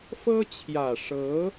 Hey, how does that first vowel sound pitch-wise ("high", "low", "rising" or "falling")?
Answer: high